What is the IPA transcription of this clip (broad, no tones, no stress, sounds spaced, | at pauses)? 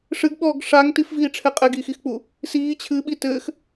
ʂ ɨ ɡ ɓ ɔː ɡ ʂ a ŋ t i f v iː ʈ͡ʂʰ ɛ qʼ ɛ ɡ iː x i x k͡p u | s iː t͡ɕʰ ɨ ɓ i t ɘː x